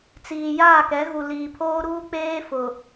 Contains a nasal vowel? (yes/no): no